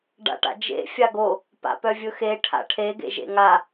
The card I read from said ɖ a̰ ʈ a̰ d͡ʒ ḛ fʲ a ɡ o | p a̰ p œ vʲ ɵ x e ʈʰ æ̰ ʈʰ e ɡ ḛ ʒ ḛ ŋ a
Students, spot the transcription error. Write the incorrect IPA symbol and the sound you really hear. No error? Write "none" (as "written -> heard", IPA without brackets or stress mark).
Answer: æ̰ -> a̰